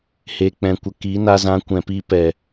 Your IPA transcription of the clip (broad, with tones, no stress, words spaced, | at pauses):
he˨k͡pɛ̃˨kʷə˨ ki˨˦na˧zã˧ kʷɛ̃˨pi˧ pɛ˨